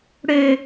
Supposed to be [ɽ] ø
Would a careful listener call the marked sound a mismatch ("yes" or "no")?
no